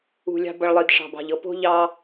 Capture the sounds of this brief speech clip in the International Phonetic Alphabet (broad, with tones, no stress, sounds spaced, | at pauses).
ṳ˨ lʲ ɑ̤˧ b ʌ˨ ɭ lˠ i˨ d ʂ ɑ̤˨ b ɑ̤˨ ʎ ɤ˨ p o̤˦ ʎ ɑ˦